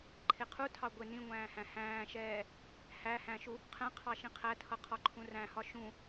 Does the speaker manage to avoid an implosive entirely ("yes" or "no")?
yes